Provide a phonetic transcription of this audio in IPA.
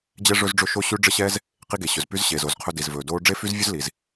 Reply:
d͡ʑ ɛ˥ ʐ ɵ˥ z ɖ͡ʐ ɵ˥ ʃ o˥ ɕ ʉ˥ ɖ͡ʐ ə˥ ɕ ɛː˥ z | q i˥ ɡ e˩ ɕ ɵ˩ z p y˥ z ɕ eː˩ z o˩ z qʰ ɵ˥ d i˩ z v ɵː˩ d oː˥ ɖ͡ʐ e˥ f y˥ z vʲ ɵ˥ z l i˩ z

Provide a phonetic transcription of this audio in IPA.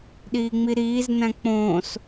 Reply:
ɗ iː ŋ͡m i ɾ iː z n æ̃ k͡p õː s

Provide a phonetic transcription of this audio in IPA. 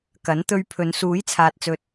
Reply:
k ɐ˨˥ n t̪ ɵ˧ ɥ pʰ ɵ˨˧ n s uː˨˥ j t͡sʰ aː˨ t̚ t͡s ɵ˨ t̚

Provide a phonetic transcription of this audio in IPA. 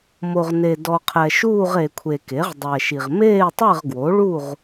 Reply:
m o˨ ʁ n e˨ d ɔ˨ qʰ ɛ˨ ʃ uː˥˨ ʁ e˨ kʷʰ e˨ k e˩˥ ʁ dˤ ɛ˨ ʃ i˨ ʁ m eː˥˨ tˤ ɛ˥˨ ʁ ɡ w o˩˥ ɭ u˥˨ ʁ

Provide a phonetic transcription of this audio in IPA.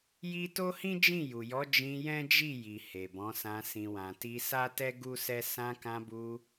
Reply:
j i˦ t o˦ h ĩ˦ d͡ʒ ĩ˦˨ j u˨ j ɔ˨˦ d͡ʒ ĩ˧ j ɛ̃˦ d͡ʒ i˦˨ j i˨ h e˨ b ɔ̃˨˦ s ã˧ s ĩ˨ w ã˨ t i˧ s a˦ t ɛ˦ ɡ u˦ s ɛ˦ s ã˧ k ã˧ b u˧

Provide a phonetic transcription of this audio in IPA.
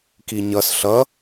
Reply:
k i ɲ ʌ s ɬ ʌ

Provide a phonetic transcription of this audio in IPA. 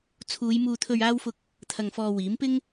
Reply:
t͡sʰ uː˨˧ j m uː˧ t̪ʰ ɵ˧ ɥ aː˥ w f ʊ˥ k̚ | t̪ʰ ɐ˧ ŋ f ɔː˧ w iː˨˥ m p ɪ˥ ŋ

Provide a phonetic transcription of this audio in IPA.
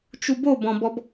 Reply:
t͡ʃ u b o b ɔ̃ b ɔ b

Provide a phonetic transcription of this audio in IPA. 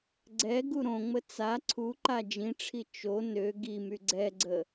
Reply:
ɡ͡ǀ ɛ ɡ u ɾ õ ŋ͡m ə t͡s a ǀʰ u ǃ a d͡ʒ ĩ ʈ͡ʂʰ i t͡ʃ o n ø ɡ i m y ɡ͡ǀ ɛ ɡ͡ǀ ə

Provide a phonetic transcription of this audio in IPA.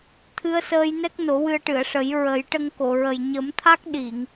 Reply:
t̪ʰ ɨ˧ ə̯ s əː˧ j n ɛ˦˥ k̚ n o˨˩˦ w ɨ˧ ə̯ ʈ ɨ˨˩˨ ə̯ ʂ ə˨˩˦ j ɹ ə˨˩˦ j ʈ ə˧ ŋ k o˨˩˨ ɹ ə˨˩ j ɲ ə˨˩˦ m t̪ʰ a˦˥ k̚ ɗ i˨˩˨ ŋ

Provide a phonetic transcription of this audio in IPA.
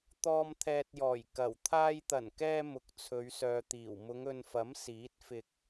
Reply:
t̪ ɔː˧ m t̪ʰ ɛː˨ t̚ j ɔː˨˩ j k ɐ˨˩ w t̪ʰ aː˧ j t̪ ɐ˨˩ n k ɛː˧ m ʊ˨˥ k̚ t͡sʰ ɵ˨˧ ɥ s œː˨ t̪ iː˨˩ w m ʊ˨˧ ŋ ɵ˨ n f ɐ˨˥ m s iː˨˥ t̚ f ɪ˧ k̚

